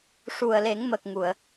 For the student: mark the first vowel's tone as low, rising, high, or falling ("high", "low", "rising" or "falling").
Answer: low